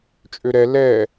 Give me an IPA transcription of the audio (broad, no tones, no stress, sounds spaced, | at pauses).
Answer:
t͡ʃʼ ø ɾ ɛ l ɛ